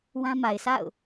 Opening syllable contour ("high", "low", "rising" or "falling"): high